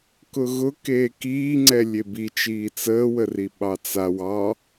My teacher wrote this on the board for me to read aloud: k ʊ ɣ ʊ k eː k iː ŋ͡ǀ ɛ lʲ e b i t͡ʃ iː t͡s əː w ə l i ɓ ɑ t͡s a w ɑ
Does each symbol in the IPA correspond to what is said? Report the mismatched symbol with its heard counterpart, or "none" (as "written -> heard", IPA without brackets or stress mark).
l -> r